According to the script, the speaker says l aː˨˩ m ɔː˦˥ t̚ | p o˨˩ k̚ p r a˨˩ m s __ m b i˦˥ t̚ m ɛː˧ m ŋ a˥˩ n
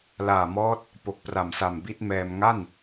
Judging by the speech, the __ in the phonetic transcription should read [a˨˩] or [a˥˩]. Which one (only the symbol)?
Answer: a˨˩